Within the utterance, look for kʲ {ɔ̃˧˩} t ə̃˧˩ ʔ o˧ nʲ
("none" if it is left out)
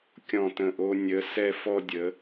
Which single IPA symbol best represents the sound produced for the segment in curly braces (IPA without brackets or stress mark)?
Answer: ɔ̃˧˩